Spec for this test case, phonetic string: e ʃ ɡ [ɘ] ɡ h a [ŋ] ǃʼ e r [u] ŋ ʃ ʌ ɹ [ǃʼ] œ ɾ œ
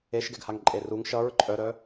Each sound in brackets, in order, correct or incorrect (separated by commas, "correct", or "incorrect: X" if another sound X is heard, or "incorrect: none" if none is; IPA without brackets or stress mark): incorrect: ɛ, correct, correct, correct